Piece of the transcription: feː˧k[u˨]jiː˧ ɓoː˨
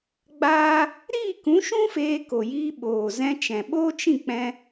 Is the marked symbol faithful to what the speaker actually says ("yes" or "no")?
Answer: no